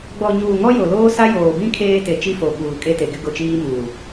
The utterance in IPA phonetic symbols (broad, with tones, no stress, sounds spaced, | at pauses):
ɡ͡b ɔ˨ ɲ uː˨ ŋ ɔ˦ j o˨ l oː˦ s a˦ j oː˨ b ĩ˦ kʰ eː˦ t e˨ t͡ʃ i˦ f o˨ ɓ uː˨ kʼ e˦ t e˨ ɡ ɪ˦ ɡ ʊ˦˨ t͡ʃ iː˦ m uː˨